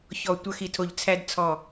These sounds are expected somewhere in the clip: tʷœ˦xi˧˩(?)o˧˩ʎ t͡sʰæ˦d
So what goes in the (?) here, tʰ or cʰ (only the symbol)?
tʰ